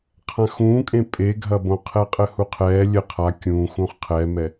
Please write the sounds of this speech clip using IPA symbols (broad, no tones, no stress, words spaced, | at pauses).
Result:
qʰãxũːkʼẽ pʼeɡʱɐbõqʰɛ qʼɘhuqʰɛː lʲɘ qʰa kʲũː xũːχqʰɛːmɛ